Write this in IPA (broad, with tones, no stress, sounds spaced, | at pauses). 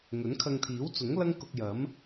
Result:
ŋ ɵ˨˥ n kʰ ɐ˧ ŋ t̪ʰ iː˨˥ w t͡s ʊ˨˥ ŋ l ɐ˥ ŋ k ʊ˧ k̚ j ɐ˨˥ m